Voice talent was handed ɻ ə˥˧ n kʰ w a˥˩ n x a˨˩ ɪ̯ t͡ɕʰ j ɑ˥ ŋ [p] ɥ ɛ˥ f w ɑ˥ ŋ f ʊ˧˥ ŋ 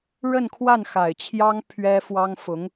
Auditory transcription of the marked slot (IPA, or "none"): pʰ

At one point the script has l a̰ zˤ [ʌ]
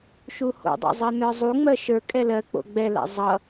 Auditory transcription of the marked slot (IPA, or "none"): ʌ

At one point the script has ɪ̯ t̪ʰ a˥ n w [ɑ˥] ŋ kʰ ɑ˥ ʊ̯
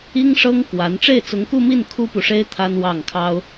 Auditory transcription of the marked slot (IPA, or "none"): ɑ˥˩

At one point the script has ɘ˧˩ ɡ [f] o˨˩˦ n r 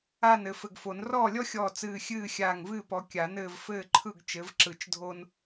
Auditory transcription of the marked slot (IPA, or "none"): f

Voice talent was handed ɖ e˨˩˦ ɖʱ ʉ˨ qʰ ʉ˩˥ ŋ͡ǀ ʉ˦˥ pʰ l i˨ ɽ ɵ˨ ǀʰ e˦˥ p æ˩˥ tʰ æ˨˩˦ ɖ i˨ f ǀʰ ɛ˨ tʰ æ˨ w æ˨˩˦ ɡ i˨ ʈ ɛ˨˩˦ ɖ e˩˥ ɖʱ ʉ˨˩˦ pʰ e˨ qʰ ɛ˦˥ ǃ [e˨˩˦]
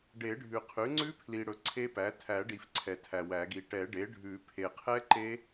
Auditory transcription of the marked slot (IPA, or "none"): e˦˥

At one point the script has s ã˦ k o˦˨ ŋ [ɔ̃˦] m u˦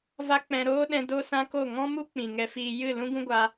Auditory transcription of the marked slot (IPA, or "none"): ɔ̃˦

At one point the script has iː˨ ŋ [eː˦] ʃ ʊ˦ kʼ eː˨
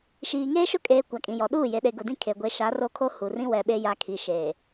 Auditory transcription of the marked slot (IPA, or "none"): eː˦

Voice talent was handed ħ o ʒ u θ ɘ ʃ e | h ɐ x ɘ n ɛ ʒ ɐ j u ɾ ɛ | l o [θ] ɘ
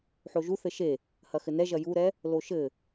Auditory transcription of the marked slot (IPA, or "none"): ʃ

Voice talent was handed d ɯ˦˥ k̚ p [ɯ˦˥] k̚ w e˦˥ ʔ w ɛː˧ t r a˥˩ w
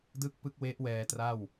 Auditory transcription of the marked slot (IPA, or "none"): ɯ˦˥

